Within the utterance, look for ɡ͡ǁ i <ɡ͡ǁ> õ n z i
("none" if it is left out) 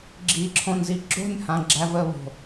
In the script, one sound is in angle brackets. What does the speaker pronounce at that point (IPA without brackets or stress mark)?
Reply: ǁʰ